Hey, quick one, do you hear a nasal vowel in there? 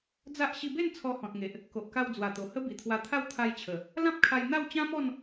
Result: yes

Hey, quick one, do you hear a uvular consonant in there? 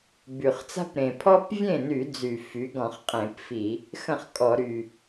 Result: yes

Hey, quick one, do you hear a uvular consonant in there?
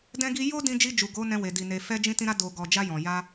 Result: no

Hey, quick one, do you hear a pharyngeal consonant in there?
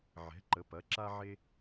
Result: yes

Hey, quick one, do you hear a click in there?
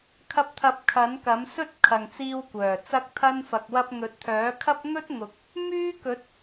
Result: no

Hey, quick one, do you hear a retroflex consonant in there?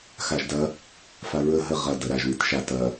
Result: no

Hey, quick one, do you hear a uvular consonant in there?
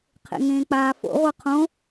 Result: yes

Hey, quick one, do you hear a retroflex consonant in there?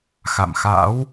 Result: no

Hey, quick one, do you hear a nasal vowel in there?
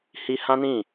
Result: yes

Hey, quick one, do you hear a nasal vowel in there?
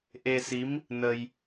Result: no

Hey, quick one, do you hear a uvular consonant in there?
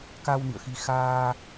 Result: no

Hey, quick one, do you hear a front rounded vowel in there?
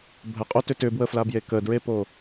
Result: yes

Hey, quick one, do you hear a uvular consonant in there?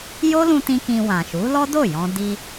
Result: no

